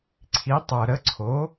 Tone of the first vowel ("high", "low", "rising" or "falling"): rising